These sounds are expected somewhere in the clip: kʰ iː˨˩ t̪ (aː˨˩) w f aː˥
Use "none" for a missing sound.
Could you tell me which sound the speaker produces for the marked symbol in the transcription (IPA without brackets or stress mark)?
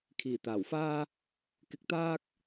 aː˨˩